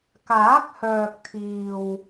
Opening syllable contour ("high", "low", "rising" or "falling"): rising